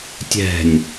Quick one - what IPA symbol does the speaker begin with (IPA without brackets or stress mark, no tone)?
tʲ